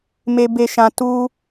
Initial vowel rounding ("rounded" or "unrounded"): unrounded